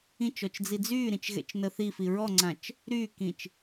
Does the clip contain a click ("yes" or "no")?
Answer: yes